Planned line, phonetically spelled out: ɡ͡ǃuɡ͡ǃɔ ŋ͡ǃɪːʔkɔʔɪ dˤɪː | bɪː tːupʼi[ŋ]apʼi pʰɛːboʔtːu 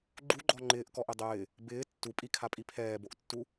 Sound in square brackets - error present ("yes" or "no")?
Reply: yes